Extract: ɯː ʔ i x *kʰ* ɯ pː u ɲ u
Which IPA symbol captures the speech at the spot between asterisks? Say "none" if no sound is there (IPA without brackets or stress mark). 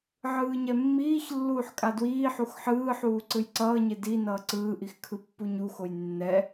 kʰ